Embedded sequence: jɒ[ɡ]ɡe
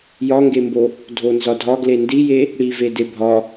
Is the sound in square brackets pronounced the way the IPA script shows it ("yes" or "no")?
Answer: no